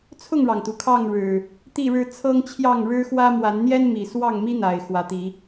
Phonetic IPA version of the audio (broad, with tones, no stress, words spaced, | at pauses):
t͡sʰʊ˥˨ŋɻɑ˩ŋt̪u˩ kʰɑ˥˨ŋɻɻ̩˨˩ | t̪i˥˨ɻɻ̩˦ t͡sʰɤ˦ŋt͡ɕʰjɑ˥˨ŋ ɻɻ̩˦xwä˦ mwa˨˦nn̪jɛ˦n mi˨˩swɑ˥˨ŋmi˦ n̪a˨˩ɪ̯ xwä˨˦t̪i˨˦